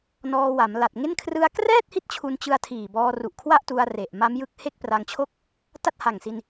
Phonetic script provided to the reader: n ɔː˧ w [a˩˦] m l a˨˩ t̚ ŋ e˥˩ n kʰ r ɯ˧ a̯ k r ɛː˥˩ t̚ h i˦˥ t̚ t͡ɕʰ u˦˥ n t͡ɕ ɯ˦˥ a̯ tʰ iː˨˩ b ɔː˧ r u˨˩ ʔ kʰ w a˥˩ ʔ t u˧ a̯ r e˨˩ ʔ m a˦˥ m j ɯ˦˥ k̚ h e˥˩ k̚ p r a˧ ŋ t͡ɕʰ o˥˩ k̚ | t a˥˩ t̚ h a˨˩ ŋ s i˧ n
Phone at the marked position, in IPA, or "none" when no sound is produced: a˩˦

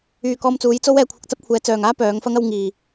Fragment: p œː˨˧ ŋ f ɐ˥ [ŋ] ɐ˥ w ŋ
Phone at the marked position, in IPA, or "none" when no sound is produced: ŋ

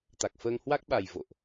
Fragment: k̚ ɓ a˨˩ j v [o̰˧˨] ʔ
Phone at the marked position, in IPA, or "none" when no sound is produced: o̰˧˨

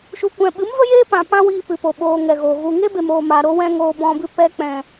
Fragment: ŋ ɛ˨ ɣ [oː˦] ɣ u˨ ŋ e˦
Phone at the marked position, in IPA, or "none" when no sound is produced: oː˨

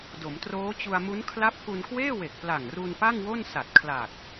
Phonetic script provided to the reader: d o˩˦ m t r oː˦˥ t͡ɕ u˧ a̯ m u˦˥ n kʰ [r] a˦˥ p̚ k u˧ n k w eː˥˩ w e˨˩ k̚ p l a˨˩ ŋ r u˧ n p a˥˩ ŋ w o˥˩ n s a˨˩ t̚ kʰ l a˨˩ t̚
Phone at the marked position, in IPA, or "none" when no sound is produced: l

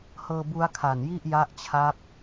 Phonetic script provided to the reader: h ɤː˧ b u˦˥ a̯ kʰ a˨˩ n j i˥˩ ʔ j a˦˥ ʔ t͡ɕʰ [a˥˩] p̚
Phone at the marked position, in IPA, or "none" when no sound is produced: a˦˥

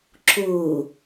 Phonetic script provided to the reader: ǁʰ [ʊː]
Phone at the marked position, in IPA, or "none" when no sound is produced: ʊː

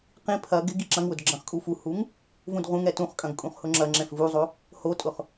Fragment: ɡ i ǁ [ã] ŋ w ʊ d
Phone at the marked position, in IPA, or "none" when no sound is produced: ɐ̃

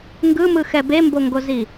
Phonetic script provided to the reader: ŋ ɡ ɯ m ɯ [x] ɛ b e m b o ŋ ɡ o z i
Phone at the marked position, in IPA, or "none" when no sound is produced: x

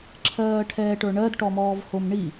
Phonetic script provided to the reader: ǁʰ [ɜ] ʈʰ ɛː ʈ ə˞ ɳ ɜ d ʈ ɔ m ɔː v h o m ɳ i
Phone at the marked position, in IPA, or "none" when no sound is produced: ɜː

